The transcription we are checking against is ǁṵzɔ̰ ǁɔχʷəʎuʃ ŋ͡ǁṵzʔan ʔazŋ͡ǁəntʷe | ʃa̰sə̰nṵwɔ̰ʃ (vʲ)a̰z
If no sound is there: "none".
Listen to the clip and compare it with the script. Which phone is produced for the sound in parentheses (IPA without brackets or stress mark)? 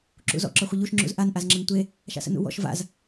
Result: v